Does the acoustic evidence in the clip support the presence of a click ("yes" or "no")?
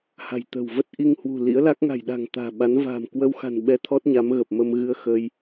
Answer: no